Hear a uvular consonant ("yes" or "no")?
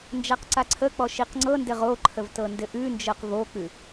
yes